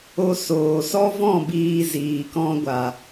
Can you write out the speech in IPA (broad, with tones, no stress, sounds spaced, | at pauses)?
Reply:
o˧ s oː˨ s ɔ˦ v ɔ̃˦˨ b iː˧ z iː˨ k ɔ̃˧ ɡʷ a˨